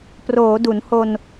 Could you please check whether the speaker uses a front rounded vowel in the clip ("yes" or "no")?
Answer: no